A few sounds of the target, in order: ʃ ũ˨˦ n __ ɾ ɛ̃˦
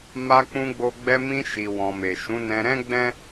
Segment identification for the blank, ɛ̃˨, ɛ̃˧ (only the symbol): ɛ̃˧